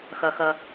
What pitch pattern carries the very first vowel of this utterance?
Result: low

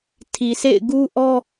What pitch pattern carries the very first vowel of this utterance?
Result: low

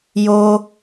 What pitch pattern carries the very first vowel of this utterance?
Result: high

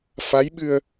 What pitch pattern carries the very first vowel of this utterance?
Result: rising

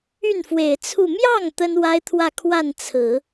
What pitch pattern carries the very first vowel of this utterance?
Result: falling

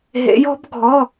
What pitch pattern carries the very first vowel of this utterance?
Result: rising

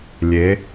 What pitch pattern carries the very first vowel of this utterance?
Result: rising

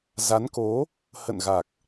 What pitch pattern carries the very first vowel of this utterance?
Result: rising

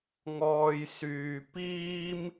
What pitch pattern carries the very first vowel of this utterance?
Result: low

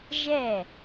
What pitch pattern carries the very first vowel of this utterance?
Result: falling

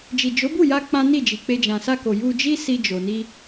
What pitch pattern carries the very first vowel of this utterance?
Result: low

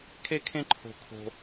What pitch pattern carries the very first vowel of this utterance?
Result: high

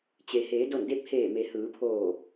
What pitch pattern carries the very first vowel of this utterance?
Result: low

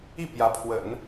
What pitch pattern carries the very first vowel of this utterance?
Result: falling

